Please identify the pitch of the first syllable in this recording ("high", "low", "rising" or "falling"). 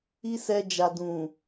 high